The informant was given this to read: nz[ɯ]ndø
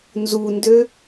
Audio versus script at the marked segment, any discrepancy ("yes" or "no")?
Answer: yes